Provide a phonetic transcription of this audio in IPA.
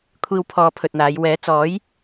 kʷʰ iː˧ w pʰ ɔː˧ pʰ ɵ˧ t̚ n̪ aː˨˧ j w ɛː˨˥ t͡s ɔː˨˥ j

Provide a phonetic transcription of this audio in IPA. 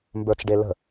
m b ə˞ t͡s ɖ e l ə̤

